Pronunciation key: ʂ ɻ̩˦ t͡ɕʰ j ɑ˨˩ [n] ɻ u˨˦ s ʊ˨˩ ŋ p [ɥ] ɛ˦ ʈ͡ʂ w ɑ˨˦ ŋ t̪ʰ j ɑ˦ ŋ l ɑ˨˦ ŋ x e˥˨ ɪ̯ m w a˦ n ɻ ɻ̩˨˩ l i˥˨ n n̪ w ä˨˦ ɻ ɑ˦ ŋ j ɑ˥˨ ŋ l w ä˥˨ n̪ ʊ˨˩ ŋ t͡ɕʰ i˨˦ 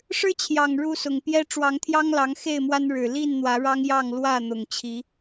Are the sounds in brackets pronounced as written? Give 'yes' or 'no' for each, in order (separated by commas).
no, no